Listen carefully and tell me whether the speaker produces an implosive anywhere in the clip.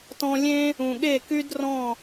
yes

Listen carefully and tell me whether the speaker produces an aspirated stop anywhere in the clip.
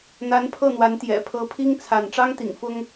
yes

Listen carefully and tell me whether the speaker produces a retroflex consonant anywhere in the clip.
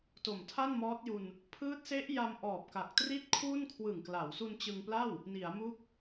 no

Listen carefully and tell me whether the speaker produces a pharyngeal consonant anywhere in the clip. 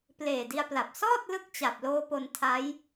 no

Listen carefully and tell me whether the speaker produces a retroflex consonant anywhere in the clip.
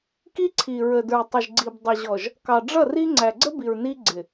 yes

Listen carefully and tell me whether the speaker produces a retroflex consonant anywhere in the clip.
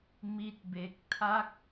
no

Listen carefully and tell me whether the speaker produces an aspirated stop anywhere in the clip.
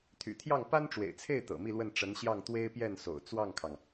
yes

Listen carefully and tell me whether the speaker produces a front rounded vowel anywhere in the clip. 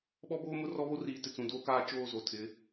no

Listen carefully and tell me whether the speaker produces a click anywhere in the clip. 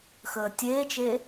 no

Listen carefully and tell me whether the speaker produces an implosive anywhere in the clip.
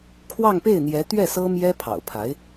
no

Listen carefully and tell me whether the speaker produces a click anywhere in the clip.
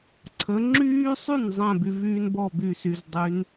yes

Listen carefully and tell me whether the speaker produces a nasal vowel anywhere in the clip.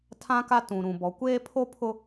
yes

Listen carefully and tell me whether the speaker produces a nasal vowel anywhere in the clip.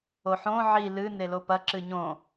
yes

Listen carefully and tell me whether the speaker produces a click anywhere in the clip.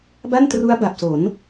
no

